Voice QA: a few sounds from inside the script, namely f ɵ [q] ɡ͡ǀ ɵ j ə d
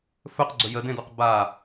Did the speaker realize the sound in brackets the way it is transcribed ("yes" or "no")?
yes